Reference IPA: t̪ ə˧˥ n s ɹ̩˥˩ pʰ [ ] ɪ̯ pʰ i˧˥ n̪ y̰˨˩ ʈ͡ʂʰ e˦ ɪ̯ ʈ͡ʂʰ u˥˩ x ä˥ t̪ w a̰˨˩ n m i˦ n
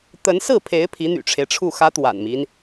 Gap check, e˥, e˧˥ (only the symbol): e˧˥